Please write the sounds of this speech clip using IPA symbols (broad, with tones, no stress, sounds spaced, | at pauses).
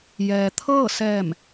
j ɛː˩ t̪ʰ ɤː˥˨ s ɛː˧˩ m